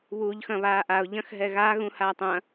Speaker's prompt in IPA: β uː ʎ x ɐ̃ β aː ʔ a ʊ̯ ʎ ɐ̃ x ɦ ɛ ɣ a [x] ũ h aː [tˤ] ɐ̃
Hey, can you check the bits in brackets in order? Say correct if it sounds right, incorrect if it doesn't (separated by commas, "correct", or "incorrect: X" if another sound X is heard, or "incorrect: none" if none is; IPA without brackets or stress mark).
incorrect: ɣ, correct